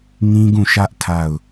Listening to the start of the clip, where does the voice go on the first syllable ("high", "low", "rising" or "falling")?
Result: high